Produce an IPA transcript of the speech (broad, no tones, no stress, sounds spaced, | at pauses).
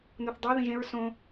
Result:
n u θ dˤ o ð ĩ ʒ ẽ ɹ s õ